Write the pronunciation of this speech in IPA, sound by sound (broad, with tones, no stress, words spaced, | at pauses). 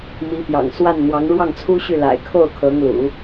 mi˧˥pjɑ̰˨˩ŋ swa˥˩nn̪wɑ˧˥ŋ ɻwɑ˥˩ŋt͡sʰu˥ɕy˥˩ la̰˨˩ɪ̯kʰo˥˩ʊ̯ kʰɤ˧˥ŋlṵ˨˩˦